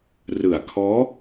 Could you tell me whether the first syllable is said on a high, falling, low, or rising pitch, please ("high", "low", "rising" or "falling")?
low